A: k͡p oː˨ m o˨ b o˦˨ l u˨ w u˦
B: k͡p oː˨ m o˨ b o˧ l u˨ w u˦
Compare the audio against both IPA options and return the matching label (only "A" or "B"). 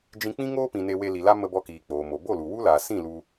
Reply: A